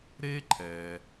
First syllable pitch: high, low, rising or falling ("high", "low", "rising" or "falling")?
high